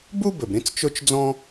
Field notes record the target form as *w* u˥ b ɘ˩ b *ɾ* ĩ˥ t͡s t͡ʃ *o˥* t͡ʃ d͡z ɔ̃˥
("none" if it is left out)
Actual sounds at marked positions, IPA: b, ɾ, o˥

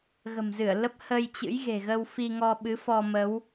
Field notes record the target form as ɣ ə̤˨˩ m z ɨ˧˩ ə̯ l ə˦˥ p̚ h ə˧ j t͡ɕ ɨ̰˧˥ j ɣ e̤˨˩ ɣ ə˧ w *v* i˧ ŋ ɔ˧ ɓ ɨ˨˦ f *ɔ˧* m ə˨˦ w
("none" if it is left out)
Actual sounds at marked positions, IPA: f, ɔ˧

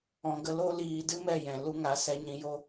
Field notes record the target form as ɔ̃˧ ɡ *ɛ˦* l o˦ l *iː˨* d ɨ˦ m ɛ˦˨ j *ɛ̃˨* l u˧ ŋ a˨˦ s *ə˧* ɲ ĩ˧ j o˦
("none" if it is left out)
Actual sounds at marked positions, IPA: ə˦, iː˧, ɛ̃˨, ɛ˧

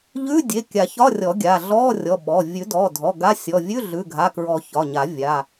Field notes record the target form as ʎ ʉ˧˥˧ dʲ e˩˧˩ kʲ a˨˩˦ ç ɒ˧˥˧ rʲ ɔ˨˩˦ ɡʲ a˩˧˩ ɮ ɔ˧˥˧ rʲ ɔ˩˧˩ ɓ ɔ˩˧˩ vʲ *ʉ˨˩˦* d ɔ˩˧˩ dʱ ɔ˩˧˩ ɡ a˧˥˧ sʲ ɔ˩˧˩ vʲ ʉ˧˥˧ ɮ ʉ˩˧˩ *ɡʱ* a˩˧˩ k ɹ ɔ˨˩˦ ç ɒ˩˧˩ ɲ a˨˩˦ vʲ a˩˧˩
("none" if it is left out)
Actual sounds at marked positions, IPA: ʉ˨˩˦, ɡʱ

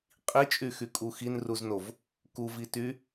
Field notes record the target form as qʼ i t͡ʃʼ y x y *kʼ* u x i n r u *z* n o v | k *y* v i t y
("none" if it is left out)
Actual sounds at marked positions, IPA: kʼ, z, u

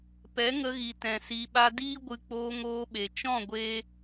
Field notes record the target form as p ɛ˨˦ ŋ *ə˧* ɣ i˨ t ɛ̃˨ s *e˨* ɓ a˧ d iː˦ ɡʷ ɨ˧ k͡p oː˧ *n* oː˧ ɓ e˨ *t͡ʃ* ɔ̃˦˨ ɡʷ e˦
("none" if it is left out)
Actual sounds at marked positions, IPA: ə˧, i˨, ŋ, t͡ʃ

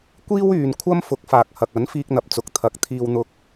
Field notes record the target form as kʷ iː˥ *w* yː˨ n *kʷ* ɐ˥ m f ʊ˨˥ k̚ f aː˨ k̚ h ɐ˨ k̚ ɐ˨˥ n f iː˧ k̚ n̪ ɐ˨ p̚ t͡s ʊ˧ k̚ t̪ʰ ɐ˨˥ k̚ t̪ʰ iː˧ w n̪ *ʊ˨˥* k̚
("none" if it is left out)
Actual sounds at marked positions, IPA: w, kʷʰ, ʊ˧

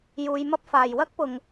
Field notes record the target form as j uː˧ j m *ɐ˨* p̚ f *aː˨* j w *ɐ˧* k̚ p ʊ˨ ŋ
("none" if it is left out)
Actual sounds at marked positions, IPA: ɐ˥, aː˨, ɐ˥

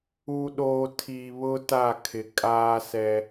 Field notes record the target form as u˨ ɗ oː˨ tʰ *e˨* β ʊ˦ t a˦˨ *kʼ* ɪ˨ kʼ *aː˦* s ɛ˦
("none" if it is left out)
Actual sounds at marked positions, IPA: i˨, kʰ, aː˦

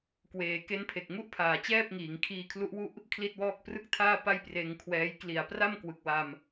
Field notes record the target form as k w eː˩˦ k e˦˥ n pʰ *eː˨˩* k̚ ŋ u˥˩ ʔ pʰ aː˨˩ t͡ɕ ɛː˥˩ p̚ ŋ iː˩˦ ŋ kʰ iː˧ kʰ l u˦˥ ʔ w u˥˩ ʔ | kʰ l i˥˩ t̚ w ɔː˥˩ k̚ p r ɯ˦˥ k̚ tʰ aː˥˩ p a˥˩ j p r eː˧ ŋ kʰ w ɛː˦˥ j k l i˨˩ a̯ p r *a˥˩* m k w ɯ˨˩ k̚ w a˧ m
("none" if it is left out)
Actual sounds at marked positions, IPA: e˨˩, a˥˩

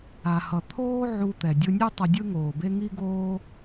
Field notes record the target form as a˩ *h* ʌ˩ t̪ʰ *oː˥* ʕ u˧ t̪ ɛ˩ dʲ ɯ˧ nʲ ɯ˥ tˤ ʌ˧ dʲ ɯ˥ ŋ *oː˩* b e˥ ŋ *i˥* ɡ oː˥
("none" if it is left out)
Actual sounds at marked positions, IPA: h, oː˥, oː˩, i˥

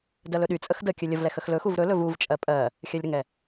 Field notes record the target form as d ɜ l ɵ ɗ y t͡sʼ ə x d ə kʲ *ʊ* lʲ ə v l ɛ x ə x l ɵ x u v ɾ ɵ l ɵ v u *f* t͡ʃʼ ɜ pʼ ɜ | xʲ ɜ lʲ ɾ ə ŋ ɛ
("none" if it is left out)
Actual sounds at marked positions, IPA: ɵ, v

